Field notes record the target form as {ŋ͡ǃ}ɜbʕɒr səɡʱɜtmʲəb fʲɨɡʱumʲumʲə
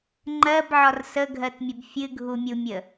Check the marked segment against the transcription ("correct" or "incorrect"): correct